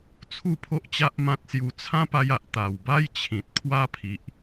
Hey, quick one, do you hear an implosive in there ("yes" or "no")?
no